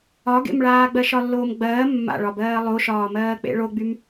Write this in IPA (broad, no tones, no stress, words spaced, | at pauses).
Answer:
ɒɡḛmɭaː ɡ͡bɜʃɒlːoːmɡ͡bɜː mːa̰ɭɒbɜː lˠoʃɒː mɜːk͡pḛɭoɡ͡bym